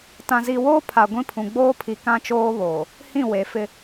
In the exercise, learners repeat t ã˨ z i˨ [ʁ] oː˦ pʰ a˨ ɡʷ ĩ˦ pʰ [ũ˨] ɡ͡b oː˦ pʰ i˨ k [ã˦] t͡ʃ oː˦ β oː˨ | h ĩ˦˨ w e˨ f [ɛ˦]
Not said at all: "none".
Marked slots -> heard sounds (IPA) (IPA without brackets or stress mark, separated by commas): w, ũ˨, ã˦, ɪ˦